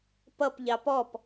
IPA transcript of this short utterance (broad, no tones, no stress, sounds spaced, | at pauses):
p ʌ p ʎ ɑ p ɔ p